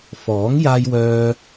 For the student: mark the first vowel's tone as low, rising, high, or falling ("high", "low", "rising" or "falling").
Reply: rising